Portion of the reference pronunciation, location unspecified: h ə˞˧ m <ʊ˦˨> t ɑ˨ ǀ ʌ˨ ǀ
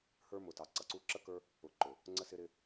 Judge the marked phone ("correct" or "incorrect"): incorrect